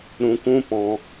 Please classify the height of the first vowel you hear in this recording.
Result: high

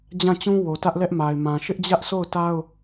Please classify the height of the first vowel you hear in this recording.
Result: low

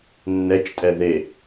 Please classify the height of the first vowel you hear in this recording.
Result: mid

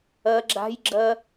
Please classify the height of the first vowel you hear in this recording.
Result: low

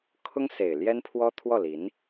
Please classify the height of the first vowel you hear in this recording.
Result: high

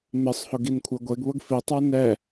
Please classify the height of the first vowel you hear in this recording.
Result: high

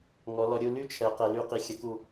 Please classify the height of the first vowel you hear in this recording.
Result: mid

